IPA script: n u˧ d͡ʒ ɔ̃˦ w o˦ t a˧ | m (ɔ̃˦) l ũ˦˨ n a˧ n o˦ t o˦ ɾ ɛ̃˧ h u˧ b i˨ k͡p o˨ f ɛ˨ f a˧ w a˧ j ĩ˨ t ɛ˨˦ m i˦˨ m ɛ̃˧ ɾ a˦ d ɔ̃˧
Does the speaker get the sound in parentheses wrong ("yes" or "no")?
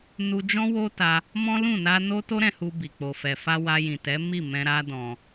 no